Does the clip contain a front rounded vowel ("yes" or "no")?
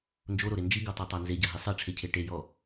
no